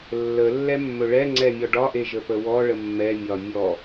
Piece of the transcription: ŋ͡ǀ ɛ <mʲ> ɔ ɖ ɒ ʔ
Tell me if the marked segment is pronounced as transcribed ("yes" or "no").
yes